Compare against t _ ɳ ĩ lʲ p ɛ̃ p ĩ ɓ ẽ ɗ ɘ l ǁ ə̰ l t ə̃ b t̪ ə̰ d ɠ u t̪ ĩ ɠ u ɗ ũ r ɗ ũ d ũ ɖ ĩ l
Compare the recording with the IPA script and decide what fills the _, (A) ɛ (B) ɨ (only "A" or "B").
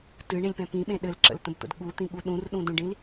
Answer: B